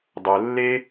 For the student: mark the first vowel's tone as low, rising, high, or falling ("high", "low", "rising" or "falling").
low